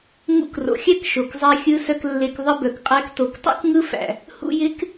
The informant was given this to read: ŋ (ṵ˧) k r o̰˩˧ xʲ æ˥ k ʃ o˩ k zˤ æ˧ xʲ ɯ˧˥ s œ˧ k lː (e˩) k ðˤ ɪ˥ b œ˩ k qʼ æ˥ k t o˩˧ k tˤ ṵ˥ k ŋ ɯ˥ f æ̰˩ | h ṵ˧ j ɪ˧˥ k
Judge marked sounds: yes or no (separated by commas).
yes, no